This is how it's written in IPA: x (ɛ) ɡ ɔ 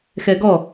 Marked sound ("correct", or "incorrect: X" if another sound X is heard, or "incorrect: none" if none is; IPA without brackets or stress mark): correct